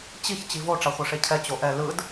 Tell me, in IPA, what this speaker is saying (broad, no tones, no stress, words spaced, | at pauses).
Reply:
t͡ɕiç t͡ɕivo ʈ͡ʂaχʷɛʂecʰɛ t͡ɕoʔɛ lɯd